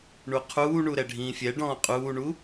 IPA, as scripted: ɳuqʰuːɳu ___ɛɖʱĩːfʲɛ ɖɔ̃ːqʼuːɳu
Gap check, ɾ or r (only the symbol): ɾ